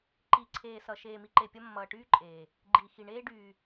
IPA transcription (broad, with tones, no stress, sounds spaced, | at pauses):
ǃ i˨˦ ǀʰ eː˨ s ʌ˨ ʃ eː˨ m i˨ ǃ e˨ pʲ ʌ˧ mː ʌː˨ ʈ yː˦ ǃʼ eː˨ | ɡ͡ǃ iː˨ x i˨ ɳ eː˧ ɖ yː˨